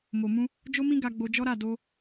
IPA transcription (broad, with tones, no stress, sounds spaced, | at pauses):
m o˨ m ũ˧ | d͡ʒ o˦ m ĩ˦ ɡ a˧ ɡ͡b o˧ d͡ʒ ɔ˦ ɾ a˦˨ d o˧